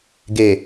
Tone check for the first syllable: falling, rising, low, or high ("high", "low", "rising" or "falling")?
low